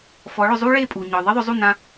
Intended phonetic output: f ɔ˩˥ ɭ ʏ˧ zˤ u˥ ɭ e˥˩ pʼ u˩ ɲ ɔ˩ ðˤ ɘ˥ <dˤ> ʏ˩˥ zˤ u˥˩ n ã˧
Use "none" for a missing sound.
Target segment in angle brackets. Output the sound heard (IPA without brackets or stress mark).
ðˤ